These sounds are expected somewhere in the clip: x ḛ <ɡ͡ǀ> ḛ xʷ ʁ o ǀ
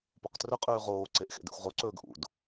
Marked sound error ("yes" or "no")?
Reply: yes